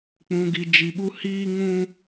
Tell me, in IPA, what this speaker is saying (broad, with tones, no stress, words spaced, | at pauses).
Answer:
k͡pũ˨ɡi˨d͡ʒi˨ɓu˦ hiː˦ŋũ˦